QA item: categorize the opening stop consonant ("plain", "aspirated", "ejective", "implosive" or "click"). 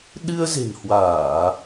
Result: implosive